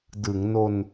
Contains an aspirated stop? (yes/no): no